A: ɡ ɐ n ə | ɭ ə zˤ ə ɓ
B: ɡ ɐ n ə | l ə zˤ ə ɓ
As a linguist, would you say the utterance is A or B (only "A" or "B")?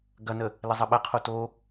B